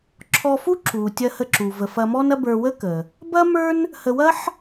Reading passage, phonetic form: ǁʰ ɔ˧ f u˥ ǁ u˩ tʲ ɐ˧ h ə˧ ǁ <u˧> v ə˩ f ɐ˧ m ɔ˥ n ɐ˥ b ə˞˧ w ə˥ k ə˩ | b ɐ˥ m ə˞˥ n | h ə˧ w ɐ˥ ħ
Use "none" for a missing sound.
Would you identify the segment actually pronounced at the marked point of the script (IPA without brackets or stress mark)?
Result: u˩